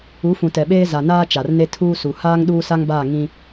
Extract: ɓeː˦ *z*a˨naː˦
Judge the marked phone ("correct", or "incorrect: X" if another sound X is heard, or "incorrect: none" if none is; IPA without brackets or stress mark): correct